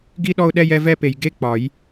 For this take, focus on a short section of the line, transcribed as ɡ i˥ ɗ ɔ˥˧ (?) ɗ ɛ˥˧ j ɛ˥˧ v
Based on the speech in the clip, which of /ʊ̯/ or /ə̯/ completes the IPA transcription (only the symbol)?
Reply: ʊ̯